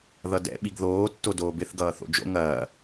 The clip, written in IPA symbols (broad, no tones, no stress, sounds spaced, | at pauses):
ð ʌ d ɛ̰ ɓ i ɡ ð oː tː o d oː b ɪ θ ɡ ʌː θ o̰ d͡ʒ o̰ ŋ ɐː